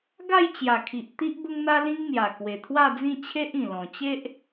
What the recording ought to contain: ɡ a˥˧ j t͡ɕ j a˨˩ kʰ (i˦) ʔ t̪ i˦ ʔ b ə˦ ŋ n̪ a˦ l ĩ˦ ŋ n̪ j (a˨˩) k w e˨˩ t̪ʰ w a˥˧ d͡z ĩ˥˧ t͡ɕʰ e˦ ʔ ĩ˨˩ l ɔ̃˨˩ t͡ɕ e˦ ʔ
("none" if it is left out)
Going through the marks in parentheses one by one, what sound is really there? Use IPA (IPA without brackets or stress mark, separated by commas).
i˨, a˨˩